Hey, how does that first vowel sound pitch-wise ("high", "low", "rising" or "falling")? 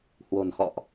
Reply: low